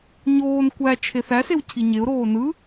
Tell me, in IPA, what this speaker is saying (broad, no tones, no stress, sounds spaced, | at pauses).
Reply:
ɲ oː n kʷ æ t͡ʃʰ e θ æ s e w cʰ i ɲ e ʊ̯ ɾ oː n ɯ